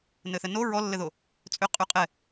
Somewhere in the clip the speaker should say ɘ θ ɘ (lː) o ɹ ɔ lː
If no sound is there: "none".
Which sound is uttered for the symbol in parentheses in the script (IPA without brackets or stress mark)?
n